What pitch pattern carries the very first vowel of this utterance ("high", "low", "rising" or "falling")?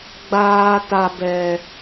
low